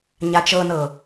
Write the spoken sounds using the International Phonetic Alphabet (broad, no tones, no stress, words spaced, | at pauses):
ɲat͡ʃɤnɤ